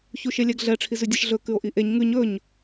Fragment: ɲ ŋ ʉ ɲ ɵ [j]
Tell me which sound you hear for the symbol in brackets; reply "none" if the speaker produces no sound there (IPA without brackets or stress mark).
ɲ